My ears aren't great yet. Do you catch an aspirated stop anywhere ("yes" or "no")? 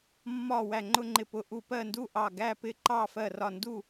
no